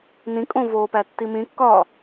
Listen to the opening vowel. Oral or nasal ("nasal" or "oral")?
nasal